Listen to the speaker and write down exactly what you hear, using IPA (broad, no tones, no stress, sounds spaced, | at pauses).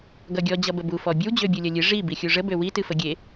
ɡ ʌ ɡʲ ɔ d͡ʑ ʌ b ə b u f ɔ bʲ ə w d͡ʑ ø bʲ u lʲ ʌ lʲ ɨ ʐ i b i xʲ u ʐ ə b ø w i t ɨ f ə ɡʲ e